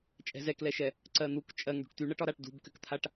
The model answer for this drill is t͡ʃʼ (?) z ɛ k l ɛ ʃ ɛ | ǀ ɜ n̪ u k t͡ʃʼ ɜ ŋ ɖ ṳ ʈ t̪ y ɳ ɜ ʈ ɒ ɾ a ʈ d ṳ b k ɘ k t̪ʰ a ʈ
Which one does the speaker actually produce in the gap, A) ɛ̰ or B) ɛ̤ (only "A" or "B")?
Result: B